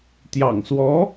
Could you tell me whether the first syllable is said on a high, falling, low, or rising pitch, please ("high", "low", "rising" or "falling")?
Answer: low